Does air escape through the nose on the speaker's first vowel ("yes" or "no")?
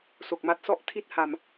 no